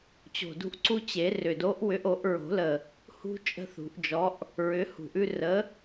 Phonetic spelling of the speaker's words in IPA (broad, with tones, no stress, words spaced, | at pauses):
t͡ɕo̤˨˩dṳ˦ʔ ǀu˦t͡ɕe˨˩˦ rʏ˨˩do˨˥ʔwʏ˨˥ʔ o˨˩˦ʔɹo̤˨˩˦lə˨˩ | hṳ˦ t͡ʃʼə̤˦θṳ˨˩˦ʔd͡ʒɔ˨˥ʔ | ɹʏ˨˥hṳ˨˩ʔʉ˦ rə˨˥